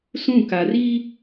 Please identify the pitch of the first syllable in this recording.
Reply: falling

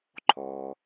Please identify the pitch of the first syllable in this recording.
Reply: low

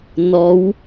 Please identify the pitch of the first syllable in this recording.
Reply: rising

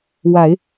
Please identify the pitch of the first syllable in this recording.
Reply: low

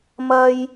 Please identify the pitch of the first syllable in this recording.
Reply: high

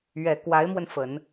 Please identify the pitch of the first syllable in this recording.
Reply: low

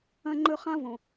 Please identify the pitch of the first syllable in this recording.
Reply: high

